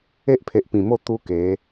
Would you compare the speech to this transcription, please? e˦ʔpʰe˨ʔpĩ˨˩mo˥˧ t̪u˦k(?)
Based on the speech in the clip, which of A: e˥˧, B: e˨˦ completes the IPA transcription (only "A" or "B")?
B